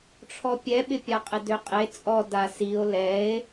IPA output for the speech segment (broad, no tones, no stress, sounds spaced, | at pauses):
ʈ͡ʂʰ ɔ pʲ ɛ ɓ ɪ pʲ a qʼ ɪ d ø qʼ e t͡sʼ ɔ d a s i o̯ l ɛ e̯